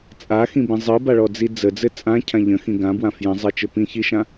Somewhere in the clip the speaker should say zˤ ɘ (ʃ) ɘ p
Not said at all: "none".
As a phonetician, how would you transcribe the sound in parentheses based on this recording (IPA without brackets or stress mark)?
t͡ʃ